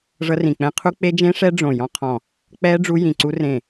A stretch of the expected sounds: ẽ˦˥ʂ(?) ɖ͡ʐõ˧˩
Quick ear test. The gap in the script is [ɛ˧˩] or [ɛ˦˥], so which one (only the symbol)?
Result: ɛ˦˥